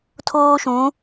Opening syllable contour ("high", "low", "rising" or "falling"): high